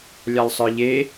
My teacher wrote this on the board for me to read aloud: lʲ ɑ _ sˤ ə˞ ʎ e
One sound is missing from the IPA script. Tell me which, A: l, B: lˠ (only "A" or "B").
B